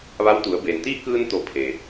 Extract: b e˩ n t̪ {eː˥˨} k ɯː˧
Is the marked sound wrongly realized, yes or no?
yes